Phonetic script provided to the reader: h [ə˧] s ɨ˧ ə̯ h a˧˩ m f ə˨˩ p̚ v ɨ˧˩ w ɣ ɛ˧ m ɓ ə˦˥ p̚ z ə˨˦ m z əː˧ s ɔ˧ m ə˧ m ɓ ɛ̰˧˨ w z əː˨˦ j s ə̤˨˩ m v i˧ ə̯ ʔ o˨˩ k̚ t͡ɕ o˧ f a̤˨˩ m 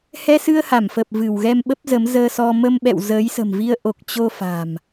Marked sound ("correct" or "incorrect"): incorrect